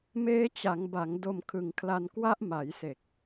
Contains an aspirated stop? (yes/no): yes